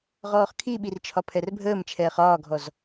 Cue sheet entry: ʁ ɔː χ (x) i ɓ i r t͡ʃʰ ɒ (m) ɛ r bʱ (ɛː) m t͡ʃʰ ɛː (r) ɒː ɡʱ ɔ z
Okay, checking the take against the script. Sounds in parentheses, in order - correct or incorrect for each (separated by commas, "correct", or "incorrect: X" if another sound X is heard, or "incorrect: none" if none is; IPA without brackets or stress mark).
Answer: incorrect: kʰ, incorrect: pʰ, incorrect: əː, incorrect: χ